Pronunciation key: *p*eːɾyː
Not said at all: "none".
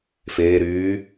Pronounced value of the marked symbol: f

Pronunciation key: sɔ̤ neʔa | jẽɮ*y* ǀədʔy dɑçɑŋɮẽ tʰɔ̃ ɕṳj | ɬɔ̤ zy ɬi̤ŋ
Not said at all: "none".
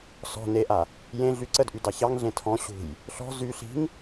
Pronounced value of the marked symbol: y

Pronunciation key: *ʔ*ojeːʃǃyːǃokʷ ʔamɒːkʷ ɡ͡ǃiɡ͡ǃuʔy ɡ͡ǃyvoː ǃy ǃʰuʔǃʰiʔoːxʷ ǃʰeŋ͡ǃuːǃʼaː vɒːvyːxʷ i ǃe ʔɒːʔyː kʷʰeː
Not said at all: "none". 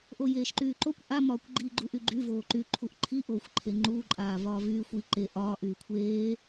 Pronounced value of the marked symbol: ʔ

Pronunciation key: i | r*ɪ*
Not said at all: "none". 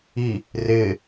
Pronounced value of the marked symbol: ɪ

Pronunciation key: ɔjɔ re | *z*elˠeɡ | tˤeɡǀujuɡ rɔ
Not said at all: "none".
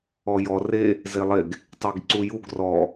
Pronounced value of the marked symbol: z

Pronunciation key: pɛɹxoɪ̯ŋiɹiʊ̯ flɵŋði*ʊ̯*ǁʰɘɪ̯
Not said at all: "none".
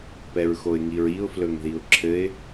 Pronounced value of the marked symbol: ʊ̯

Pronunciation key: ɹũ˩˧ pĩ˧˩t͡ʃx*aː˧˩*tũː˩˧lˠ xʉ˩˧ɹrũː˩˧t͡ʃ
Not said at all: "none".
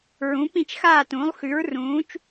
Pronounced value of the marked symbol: aː˧˩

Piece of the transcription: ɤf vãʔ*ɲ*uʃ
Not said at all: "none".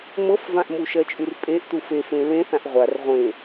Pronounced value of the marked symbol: m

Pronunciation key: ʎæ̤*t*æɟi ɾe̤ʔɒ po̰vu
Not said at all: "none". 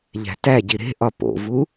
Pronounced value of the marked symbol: t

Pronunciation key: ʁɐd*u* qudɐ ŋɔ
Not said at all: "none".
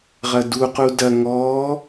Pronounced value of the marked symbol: u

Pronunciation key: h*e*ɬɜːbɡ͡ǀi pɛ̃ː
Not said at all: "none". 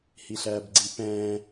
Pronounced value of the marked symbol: i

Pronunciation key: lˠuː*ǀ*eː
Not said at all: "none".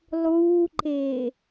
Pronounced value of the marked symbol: ǃ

